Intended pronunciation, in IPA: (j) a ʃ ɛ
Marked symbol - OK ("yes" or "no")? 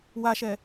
no